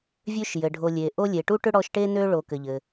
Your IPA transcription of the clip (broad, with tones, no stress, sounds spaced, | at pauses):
vʲ ø˦ ʃ j ɘ˩ ɖʱ o˨ lʲ e˩ ʔ o˦ lʲ e˩ ʈ u˥ ʈ ʏ˥ ɽ ɔ˦ ʃ ʈ e˥ n ø˥ ɭ o˨ k ɘ˩ ʎ ɘ˩